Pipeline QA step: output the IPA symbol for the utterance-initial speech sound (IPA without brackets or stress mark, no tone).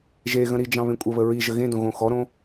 ʒ